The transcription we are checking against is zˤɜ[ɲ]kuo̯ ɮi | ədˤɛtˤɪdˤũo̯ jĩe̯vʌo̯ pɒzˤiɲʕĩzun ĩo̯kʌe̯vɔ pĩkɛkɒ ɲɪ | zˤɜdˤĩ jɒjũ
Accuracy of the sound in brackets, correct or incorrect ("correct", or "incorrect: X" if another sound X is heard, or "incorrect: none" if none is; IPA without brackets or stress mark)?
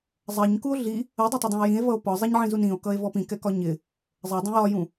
correct